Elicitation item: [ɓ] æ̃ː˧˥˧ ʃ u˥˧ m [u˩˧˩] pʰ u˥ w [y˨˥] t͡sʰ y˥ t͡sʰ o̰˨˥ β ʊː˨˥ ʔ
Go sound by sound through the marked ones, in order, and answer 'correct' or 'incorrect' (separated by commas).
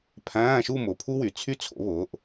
incorrect, incorrect, incorrect